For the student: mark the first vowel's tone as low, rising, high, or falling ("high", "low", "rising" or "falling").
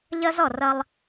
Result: high